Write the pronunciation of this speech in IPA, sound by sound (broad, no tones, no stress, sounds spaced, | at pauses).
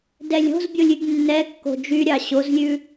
d ɛ lʲ o̤ z bʲ o lʲ y ɡ nː ɛ kː o̤ d͡ʒ y ɾʲ ɑ ɕ o z lʲ ʉ